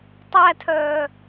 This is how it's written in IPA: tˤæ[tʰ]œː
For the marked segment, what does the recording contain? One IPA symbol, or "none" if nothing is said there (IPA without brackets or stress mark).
tʰ